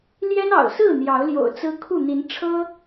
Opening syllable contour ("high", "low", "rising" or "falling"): high